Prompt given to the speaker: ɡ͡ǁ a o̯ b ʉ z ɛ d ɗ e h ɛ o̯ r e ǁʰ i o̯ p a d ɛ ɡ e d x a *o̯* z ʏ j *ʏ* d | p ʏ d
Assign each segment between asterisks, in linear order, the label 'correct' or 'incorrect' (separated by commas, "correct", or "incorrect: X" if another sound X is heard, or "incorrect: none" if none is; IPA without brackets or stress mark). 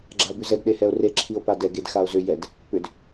correct, incorrect: ɛ